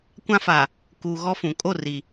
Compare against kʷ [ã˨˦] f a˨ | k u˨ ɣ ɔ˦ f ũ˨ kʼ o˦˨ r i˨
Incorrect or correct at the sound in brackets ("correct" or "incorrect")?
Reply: incorrect